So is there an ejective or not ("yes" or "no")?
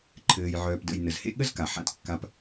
no